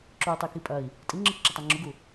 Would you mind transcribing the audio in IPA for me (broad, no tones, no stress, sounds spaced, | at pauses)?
ǁ u y̯ tˤ i k i pʼ ɐ i̯ | tʼ i ŋ͡ǁ ɯ k ǁ ə tˤ æ ŋ͡ǁ u ɡ u